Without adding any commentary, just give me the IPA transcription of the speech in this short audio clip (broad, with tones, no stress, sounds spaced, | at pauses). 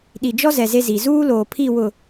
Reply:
ɗ i˨ d͡ʒ ɔ˦ z ɛ˨ z e˦ z i˨ z uː˦ l oː˨ pʰ i˦˨ w ʊ˨